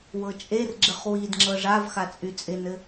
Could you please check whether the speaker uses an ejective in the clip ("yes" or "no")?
yes